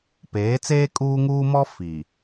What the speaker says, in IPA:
p eː˨˦ t͡s eː˦ kʼ uː˦ ŋ uː˦ m ɔ˦ f i˨

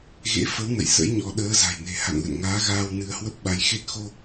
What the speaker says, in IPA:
ɣ ḛ˧˥ f ə˨˦ w n ə̰˧˨ j s ə̰˧˥ j ɲ ɔ˨˦ ɗ əː˨˦ z a̤˨˩ j n e̤˨˩ h a̰˧˨ n l ə̰˧˨ n ŋ aː˨˦ ɣ aː˧ w n ɨ˧ ə̯ h w ə˦˥ p̚ ɓ a˨˦ j x e˦˥ t̚ x o˧

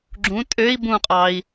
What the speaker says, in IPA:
ɡ͡ǁ ũ tʼ ø i̯ b ũ qʼ ɑ i̯

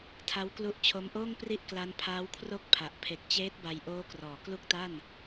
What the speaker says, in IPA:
tʰ a˦˥ w k l u˦˥ ʔ t͡ɕʰ o˦˥ m ʔ oː˥˩ ŋ p r i˥˩ ʔ k l a˦˥ n pʰ aː˦˥ w kʰ r o˥˩ k̚ pʰ a˨˩ ʔ pʰ e˨˩ k̚ t͡ɕ eː˦˥ t̚ b a˧ j ʔ oː˦˥ k r ɔː˩˦ k l u˦˥ k̚ t a˥˩ n

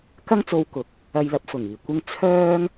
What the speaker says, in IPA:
k ɐ˥ ŋ t͡s o˧ w k ʊ˨ k̚ | ɐ˧ j l ɐ˨˥ p̚ f ʊ˨˩ ŋ iː˨˩ kʷ ɪ˧ ŋ t͡sʰ œː˥ ŋ

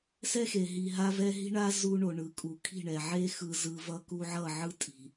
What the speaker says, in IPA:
s ɛ˦ x e˨ ɦ i˨ ɦ a˦ v ɛ˦ ɦ i̤˦ ɳ a˦ z u˦ ɳ o˨ ɳ ɯ˨ kʼ u˨ kʰ i̤˦˨ ɳ ɛ˨ ʕ e˦ x ɯ˨ z ɯ˨ v ʌ˦ k u˦ ʕ ʌ˦˨ ʕ ɯ˦ tʼ i̤˨

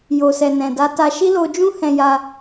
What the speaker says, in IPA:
j o˨ s ɛ˨ n ɛ̃˨ d a˧ t a˧ ʃ i˦ l o˧ d͡ʒ ũ˦ h ɛ̃˧ j a˧

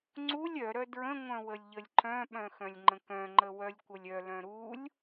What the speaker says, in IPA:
ŋ͡ǀ u lʲ œ ɾ œ d ɹ ə̃ ŋʷ œ̃ w ə lʲ ʎ ə lʲ ǃ œ̃ ɓ œ̃ x œ̃ lʲ ŋ͡ǃ ə̃ k œ̃ ŋ͡ǃ ə w œ lʲ kʷ ə lʲ œ l œ̃ ɾ u lʲ

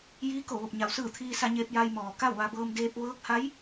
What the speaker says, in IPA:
j iː˧˥ k o˧˩ ʋ o˧˩ p̚ ɲ a˩˧ w s ɯː˧˩ t̪ʰ iː˧ s a˧ ɲ eː˧ p̚ j a˧ j m ɔː˩ k a˥˨ w ʋ a˧ b ɤː˧ m d eː˧ p̚ ʋ ɤː˧˥ k̚ h a˧˥ j

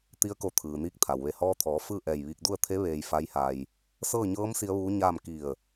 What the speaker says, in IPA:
t̪ i˧˥ ə̯ k o˧ t̪ʰ ɯː˩ n iː˧˥ k̚ t̪ʰ a˩ w ʋ e˧˩ h ɔː˧ t̪ʰ ɔː˩˧ f ɯː˥˨ ʔ ɛː˧˩ j ʋ iː˧ k̚ d u˥˨ ə̯ t̪ʰ e˧˥ ʋ eː˧ j f a˧˥ j h a˧ j | s ɤː˥˨ ɲ ɤː˧˥ m s i˧˥ ə̯ ʋ uː˧˥ ɲ aː˥˨ m k i˧˩ ə̯

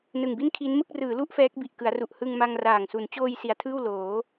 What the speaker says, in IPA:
n ɯ˨˩ ŋ b i˥˩ n kʰ i˦˥ n m ɯ˥˩ k̚ r ɯː˩˦ l u˥˩ ʔ f ɛː˦˥ k̚ b i˨˩ ʔ k ɯ˩˦ a̯ r u˨˩ ʔ h ɯ˧ ŋ m a˧ ŋ r aː˨˩ ŋ s u˩˦ n t͡ɕ oː˧ j s i˩˦ a̯ tʰ ɯː˥˩ w l oː˩˦

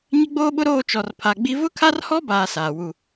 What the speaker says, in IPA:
ɲ ɪ˦ ɡ͡b oː˦ ɓ ʊ˦ ɾ oː˦˨ t͡ʃ ɔ˨ r pʰ a˨ ɡ͡b i˦ v ʊ˦ kʰ a˦ r h ɔ˦ b aː˨ s aː˨ w u˦˨

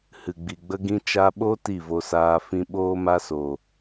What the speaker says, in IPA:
h ɨ˨ ɡ͡b i˨ ɡ͡b ə˧ ɡ ĩ˧ t͡ʃ a˧ ɓ o˦ t i˦˨ v o˧ s aː˧ f ĩ˧ ɓ oː˦ m a˦ s o˨

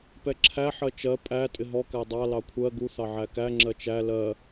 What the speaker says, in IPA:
p ɛ ǁʰ æ ħ ɜ t͡ʃ ɜ pʼ æ tʼ ɪ ɦ ɔ k æ dˤ ɑ l ɑ kʷʰ ɜ ɡ u θ ɑ ʕ æ k æ ŋ͡ǁ ɜ t͡ʃ æ l ɜ

